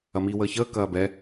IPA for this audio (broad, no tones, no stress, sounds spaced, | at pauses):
ɐ m iː w əː ç əː k ɐː b ɛ